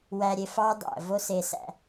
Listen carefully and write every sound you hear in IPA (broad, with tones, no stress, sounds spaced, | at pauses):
w æ˨ ɾʲ e˨ f ɑ˧ ɪ̯ dˤ æ̰˨ v o˦ s e˧ s æ̰˧